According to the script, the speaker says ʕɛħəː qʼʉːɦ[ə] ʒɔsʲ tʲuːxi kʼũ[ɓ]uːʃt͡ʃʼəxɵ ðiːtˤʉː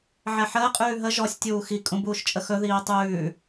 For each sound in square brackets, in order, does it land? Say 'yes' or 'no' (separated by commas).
yes, no